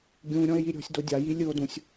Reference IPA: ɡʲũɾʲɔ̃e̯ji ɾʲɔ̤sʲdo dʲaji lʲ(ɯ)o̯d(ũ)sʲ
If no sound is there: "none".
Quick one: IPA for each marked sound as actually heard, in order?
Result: ɯ, ũ

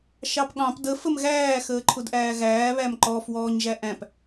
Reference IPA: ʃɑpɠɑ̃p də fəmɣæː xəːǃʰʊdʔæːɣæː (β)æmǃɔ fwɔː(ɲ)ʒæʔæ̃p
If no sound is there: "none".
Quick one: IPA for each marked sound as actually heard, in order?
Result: β, ɲ

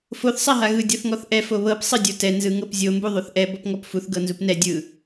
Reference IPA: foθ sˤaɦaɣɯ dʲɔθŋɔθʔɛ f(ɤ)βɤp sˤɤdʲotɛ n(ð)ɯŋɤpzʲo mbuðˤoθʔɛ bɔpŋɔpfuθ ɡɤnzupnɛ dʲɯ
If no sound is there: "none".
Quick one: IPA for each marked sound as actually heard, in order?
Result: o, z

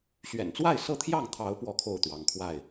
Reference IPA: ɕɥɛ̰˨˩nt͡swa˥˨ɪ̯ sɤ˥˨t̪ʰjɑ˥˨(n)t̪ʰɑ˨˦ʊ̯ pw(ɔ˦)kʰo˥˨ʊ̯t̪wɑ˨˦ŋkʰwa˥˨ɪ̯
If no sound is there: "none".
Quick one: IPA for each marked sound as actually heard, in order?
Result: ŋ, ɔ˦

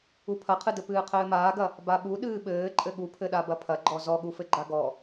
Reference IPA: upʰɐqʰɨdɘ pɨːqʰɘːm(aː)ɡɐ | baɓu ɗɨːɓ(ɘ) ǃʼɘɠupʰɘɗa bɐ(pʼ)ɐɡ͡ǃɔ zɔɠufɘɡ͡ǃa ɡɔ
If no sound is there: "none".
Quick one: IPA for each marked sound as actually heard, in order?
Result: aː, ɘː, pʰ

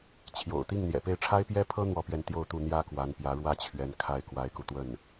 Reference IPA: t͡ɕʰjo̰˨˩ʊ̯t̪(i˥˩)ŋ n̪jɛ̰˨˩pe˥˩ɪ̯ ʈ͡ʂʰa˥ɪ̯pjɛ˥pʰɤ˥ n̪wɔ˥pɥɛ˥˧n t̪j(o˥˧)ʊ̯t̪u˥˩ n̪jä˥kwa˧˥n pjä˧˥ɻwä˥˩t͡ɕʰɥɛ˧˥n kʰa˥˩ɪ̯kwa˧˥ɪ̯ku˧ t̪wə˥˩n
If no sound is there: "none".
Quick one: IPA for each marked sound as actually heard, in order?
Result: i˥˩, o˥˧

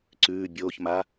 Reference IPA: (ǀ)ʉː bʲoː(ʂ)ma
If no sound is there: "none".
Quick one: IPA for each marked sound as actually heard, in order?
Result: ǀ, ç

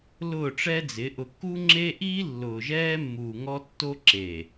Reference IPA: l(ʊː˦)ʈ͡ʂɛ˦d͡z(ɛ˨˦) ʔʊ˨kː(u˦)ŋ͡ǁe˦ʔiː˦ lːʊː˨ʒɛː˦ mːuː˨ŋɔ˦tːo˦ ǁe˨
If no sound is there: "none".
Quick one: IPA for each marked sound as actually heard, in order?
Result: ʊː˦˨, ɪ˨˦, u˦

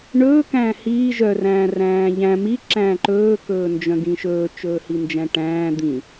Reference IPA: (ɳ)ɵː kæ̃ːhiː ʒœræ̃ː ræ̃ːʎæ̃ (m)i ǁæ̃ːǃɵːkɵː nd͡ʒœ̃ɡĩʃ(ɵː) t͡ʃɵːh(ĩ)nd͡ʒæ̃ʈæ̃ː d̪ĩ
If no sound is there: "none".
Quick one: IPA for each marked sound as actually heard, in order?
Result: ɳ, m, ɵː, i

